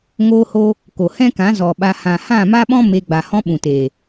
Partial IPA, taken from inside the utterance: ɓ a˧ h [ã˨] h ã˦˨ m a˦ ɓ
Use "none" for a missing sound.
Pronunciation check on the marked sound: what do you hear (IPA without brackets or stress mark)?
ã˨